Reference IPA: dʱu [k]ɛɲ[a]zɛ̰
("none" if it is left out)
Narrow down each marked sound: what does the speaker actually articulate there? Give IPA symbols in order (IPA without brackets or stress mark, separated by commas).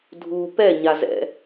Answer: p, a